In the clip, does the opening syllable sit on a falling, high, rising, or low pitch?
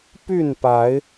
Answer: falling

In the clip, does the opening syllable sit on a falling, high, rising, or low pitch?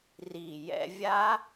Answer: low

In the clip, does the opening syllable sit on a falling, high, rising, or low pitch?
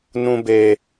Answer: high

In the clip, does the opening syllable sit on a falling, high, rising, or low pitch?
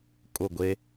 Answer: falling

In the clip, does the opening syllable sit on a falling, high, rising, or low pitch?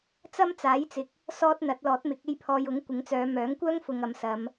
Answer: high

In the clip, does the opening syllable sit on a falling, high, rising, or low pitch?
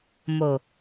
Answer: low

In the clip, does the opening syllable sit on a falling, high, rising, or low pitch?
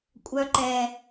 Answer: low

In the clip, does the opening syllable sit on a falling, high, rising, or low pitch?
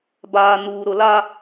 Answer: low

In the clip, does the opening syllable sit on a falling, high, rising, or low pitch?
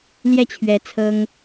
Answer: falling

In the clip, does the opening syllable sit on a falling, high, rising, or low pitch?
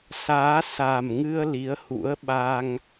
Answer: rising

